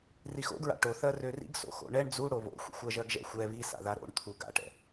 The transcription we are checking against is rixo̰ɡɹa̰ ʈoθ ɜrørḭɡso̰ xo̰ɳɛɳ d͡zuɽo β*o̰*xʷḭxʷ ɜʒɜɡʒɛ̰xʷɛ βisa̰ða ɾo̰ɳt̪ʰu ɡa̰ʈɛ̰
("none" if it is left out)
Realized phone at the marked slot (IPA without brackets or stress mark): o̰